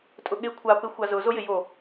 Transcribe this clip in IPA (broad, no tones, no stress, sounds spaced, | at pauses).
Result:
tʼ ʊ ɠ e kʷʰ a p ɪ xʷ a z ʊ z o j ɪ j o